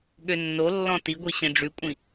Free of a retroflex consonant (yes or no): no